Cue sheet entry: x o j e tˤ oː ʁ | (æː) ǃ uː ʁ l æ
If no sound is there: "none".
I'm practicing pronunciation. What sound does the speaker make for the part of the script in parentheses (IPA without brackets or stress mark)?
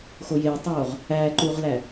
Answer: æː